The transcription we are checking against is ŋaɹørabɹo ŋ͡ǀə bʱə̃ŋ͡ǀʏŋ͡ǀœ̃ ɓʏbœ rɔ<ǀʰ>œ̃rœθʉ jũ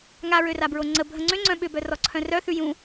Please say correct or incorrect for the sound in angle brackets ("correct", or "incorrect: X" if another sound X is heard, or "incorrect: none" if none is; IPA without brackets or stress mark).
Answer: correct